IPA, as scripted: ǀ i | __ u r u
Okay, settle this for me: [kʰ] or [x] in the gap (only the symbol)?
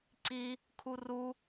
kʰ